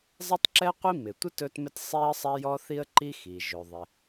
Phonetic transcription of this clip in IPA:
zˤ ɪ˥ tˤ ǁ ɛ˥ qʷ i˥ m ɪ˩ tʷ ɪ˥ t ɵ˥ t m ɪ˥ t sˤ i˥ ə̯ sˤ ɛ˥ j ɔ˥ θ i˥ ə̯ ǃ i˥ x i˩ ʒ ɵ˩ ðˤ ɪ˩

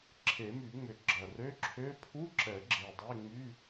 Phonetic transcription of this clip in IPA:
ǁʰ e˨˩˦ m y˨˩˦ ŋ͡m ʏ˨˩˦ ɡ͡ǁ ɐ˨˩ r ø˧˥˧ ǁʰ ø˧˥˧ pʰ u˧˥˧ ǁ ɛ˨˩˦ ɡ͡ǁ e˨˩ dˤ e˧˥˧ ŋ͡m y˧˥˧

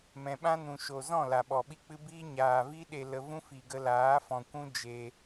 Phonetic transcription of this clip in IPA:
m ɛ̃˨ ɓ ã˦ n ũ˨ ʃ o˨ z ɔ̃˦˨ l a˨ ɓ ɔ˨ ɓ i˧ k͡p ɨ˧ b iː˦ ɲ aː˨ v i˦ ɗ e˧ l ə˧ v ũ˦ f i˨ ɡ ə˧ l aː˨˦ f ɔ̃˨ kʷ ũ˦ d͡ʒ e˧

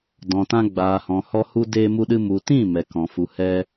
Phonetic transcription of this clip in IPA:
d ɔ̃˨ t ã˧ ɡ͡b aː˨ h ɔ̃˨ h ɔ˧ h u˦ d eː˧ m u˧ ɗ ɨ˧ m u˨ t ĩ˦˨ m ɛ˨ k ɔ̃˨ f u˨ h ɛ˧

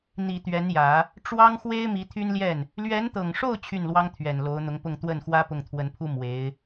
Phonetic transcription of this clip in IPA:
n̪ i˨˩ t̪ ɥ ɛ˧˥ n j ä˨˩˦ | ʈ͡ʂ w ɑ˥ ŋ x w e˥ ɪ̯ m i˧˥ t̪ʰ y˥ n l j ɛ˥˩ n | l ɥ ɛ˧˥ n t̪ ɤ˨˩ ŋ ʂ o˥˧ ʊ̯ t͡ɕʰ y˥˩ n l w ɑ˥ ŋ t̪ʰ ɥ ɛ˨˩ n l o˧˥ ʊ̯ n̪ ʊ˧˥ ŋ p ʊ˥˧ ŋ t̪ w ə˥˩ n x w ä˥ p ʊ˥˩ ŋ t̪ʰ w ə˧˥ n pʰ u˥ m w e˧˥ ɪ̯

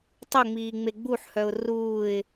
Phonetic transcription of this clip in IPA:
tˤ ʊ ŋ͡m iː ŋ͡m e ɡ͡b u ħ h œ ʊ̯ r uː ɪ̯

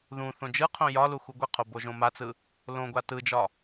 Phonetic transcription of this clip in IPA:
ð ũ θ õ d͡ʒ ɯ qʰ õ j ɒ l u x u ɡʷ ɘ qʰ o b o ʒ õ m a t͡s ɯ | l õ ɡʷ a t ɯ d͡ʒ ɒ

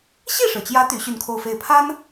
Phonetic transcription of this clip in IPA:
ɕ i˥˩ ʂ ɻ̩˩ t͡ɕ j ä˧˥ t̪ y˧˥ ɕ y˥˧ n kʰ o˥˧ ʊ̯ f e˥˩ ɪ̯ pʰ a˥ n

